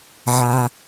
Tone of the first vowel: low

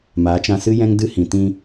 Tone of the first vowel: rising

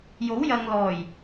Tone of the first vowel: rising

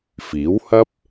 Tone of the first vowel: rising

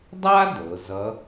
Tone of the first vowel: high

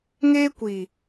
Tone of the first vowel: high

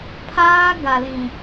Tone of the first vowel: high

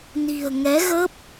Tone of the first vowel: low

